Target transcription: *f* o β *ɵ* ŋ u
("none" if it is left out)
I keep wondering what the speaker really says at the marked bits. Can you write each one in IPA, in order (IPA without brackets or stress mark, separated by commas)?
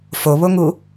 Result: f, o